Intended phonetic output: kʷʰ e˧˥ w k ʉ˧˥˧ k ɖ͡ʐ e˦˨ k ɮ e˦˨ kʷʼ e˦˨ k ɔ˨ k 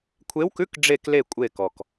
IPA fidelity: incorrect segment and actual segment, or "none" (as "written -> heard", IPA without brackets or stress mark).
ɮ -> l